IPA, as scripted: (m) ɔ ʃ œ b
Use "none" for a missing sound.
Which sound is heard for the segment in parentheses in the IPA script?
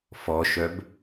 f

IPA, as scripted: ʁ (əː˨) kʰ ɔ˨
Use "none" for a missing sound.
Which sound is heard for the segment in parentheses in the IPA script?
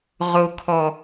ʊː˨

